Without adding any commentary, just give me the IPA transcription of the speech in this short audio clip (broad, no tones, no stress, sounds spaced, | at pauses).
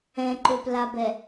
ɛ̃ ǃ ø p l a b ɛ